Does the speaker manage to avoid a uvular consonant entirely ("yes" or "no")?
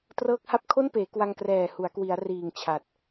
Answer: yes